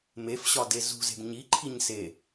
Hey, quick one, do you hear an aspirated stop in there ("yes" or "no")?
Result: yes